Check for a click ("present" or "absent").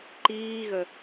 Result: present